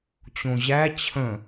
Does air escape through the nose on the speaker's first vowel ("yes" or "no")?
yes